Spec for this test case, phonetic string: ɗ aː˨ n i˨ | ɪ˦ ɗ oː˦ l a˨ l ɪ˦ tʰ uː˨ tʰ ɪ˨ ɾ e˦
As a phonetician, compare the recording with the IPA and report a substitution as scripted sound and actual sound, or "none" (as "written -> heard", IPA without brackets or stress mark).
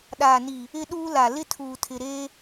oː˦ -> uː˦